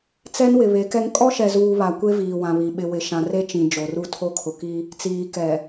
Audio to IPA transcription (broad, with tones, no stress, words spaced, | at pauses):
t͡sɛ˦nwɪ˨ βe˨˦kɛ˦ŋ kʼɔ˦ʃɛ˨zuː˨ βa˨kʷe˦ viː˨wã˨βi˨ ɓɪ˨wɪ˨ʃã˨ re˦t͡ʃĩ˨ d͡ʒo˨ru˦ tʰo˦kʰʊ˨ki˦ | t͡siː˨ kɛ˨